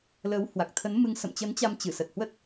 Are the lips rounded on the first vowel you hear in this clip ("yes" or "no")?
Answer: no